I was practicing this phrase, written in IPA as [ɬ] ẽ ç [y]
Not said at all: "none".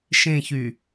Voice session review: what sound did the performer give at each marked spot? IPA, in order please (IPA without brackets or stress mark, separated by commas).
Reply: ʃ, y